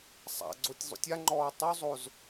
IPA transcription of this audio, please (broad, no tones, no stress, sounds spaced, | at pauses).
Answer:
sˤ a̰ ɡ͡ǀ o tʲ zˤ ṵ tʲ a ŋ͡ǃ ɔː tˤ u zˤ o z